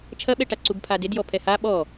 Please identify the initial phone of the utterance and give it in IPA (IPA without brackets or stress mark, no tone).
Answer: t͡ʃʰ